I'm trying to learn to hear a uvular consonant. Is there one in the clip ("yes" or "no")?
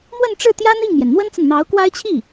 no